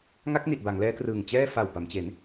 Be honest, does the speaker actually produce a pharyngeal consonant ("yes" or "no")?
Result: no